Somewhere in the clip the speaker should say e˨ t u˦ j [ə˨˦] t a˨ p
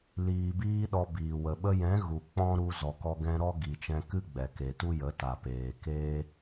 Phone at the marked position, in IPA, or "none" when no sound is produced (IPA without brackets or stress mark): ə˨˦